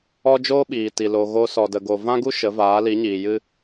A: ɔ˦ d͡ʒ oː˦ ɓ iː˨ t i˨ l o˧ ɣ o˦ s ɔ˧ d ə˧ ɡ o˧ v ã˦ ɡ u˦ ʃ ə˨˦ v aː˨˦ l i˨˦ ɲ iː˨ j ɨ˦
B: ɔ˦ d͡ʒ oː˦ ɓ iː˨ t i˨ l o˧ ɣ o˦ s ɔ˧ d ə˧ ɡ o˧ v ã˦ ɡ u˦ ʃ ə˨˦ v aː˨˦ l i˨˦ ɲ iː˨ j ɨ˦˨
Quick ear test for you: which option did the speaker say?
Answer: A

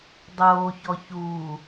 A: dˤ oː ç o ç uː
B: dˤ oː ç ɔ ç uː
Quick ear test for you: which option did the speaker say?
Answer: B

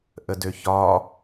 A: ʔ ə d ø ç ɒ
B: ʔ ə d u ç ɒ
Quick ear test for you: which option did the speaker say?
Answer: A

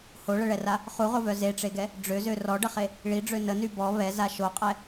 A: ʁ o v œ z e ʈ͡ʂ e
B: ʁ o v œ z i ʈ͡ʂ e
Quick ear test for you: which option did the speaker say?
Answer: A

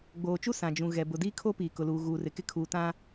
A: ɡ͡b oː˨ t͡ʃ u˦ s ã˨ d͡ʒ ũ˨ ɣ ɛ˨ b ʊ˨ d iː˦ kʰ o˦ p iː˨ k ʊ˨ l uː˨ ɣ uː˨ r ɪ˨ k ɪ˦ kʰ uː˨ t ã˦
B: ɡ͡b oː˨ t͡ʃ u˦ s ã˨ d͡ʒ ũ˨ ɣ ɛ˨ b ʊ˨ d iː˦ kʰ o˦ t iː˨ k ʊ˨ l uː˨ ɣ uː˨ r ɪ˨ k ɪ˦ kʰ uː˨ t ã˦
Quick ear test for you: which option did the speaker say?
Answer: A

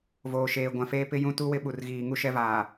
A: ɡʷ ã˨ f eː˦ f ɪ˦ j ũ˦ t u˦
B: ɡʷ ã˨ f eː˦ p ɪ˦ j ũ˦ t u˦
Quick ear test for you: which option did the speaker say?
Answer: B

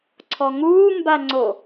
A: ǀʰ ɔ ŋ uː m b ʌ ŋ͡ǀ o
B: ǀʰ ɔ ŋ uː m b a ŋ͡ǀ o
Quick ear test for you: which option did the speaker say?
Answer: B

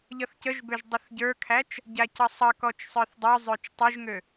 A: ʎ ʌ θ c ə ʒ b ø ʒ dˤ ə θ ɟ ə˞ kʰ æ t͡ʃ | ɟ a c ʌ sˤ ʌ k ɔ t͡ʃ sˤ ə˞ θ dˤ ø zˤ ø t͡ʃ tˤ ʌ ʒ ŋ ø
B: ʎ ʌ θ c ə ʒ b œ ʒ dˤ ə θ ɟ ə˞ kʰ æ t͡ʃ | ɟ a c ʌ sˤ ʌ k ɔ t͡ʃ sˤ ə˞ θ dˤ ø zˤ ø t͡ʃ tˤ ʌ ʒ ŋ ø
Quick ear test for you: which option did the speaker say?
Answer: A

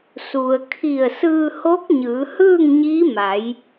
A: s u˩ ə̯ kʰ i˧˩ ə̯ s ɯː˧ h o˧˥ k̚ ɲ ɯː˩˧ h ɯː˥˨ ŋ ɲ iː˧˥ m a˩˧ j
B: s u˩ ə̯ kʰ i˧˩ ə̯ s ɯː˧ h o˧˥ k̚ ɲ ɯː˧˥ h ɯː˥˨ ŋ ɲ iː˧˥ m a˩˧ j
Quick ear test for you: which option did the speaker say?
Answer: A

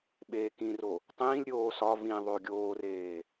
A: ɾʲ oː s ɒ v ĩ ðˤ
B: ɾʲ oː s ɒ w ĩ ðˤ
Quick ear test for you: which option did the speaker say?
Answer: A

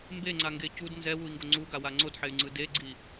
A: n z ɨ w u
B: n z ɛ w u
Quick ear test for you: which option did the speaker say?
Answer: B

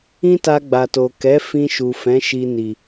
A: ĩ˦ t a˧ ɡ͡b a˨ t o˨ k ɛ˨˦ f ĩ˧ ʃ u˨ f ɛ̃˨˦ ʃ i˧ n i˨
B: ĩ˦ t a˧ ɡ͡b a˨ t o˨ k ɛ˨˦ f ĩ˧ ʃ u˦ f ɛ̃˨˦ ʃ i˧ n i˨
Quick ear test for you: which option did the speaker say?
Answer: A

